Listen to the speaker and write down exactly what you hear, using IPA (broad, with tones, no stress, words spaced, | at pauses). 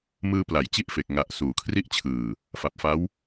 mɯː˧pla˩˦j t͡ɕi˥˩ʔfe˨˩k̚ ŋa˨˩ʔ suː˩˦kʰri˥˩ʔt͡ɕʰɯː˨˩ | fa˨˩p̚fa˦˥w